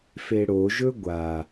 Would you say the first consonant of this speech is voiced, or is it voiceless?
voiceless